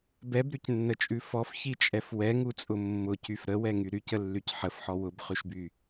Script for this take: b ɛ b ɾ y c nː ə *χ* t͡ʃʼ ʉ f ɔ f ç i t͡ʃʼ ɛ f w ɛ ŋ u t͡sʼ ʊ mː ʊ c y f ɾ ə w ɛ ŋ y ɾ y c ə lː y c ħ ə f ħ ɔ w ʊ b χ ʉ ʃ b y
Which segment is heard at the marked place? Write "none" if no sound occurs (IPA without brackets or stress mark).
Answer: none